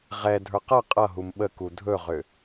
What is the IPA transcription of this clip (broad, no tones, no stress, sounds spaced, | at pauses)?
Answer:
ʁ ɛ dʱ ə˞ q ʌ qʼ ʌ ɦ u m ɓ ə k u dʱ ɵ ʁ ʏ